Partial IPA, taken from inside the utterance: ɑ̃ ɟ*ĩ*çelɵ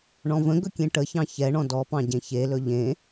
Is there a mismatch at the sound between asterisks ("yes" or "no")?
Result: yes